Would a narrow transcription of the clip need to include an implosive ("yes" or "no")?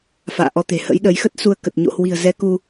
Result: yes